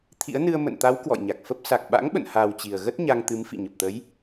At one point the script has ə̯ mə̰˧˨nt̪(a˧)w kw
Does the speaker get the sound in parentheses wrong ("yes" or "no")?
yes